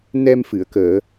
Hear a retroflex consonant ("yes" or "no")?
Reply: no